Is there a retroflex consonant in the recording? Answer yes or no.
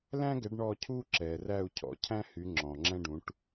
yes